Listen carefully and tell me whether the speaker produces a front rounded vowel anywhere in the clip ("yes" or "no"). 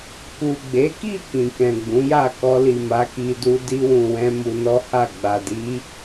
no